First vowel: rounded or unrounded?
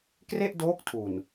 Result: unrounded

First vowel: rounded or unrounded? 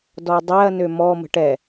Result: rounded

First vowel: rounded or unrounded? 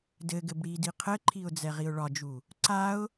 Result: unrounded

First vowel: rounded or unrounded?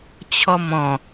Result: rounded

